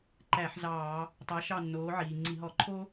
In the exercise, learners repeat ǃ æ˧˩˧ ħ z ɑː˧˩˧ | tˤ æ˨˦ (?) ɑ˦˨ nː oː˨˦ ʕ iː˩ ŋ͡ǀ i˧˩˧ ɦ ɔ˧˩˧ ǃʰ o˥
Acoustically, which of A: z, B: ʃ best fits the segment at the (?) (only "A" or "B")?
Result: B